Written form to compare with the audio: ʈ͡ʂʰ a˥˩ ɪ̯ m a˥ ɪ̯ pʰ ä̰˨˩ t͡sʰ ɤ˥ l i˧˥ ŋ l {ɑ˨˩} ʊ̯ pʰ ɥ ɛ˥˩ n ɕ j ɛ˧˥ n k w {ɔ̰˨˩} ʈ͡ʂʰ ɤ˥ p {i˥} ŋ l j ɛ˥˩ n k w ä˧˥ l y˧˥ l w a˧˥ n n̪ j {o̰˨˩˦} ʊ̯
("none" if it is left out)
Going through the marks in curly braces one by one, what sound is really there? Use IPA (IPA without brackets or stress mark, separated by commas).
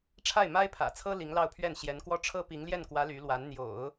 ɑ˥˧, ɔ˥, i˧˥, o̰˨˩˦